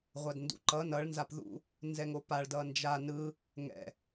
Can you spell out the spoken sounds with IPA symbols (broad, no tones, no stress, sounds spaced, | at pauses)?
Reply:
ʁʷ a d n d ṵ ǃ ʌ n ʌ ɭ n z a p ð ṵ | n z ɛ ŋ o p a ɭ d ʌ n d͡ʒ a n ɯ | ŋ ɛ̰